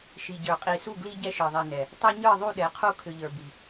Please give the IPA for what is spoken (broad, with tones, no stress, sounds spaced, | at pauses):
ʃ i˨ ɟ ə˞˨ qʼ i˨ s u˦˨ ɡ l i˦ ɟ ɛ˦ ʃ ə˞˨ ðˤ i˨ n ɛ˨ | tˤ ə˞˦ ɲ ə˞˦˨ ðˤ u˦˨ ɗ ɛ˨˦ qʰ u˦ kʰ ʏ˨ ʎ ə˞˨ b i˨